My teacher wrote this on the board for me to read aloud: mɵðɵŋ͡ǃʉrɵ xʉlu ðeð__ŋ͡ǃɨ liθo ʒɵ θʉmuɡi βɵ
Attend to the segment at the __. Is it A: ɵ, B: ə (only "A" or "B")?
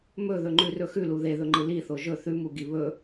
A